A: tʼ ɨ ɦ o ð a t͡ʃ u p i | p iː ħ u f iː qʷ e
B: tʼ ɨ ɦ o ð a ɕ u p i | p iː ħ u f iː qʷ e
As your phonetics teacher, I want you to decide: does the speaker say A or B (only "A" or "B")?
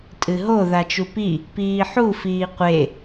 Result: A